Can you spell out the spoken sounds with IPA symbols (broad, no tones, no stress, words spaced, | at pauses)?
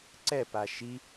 ǀɛpa ʃi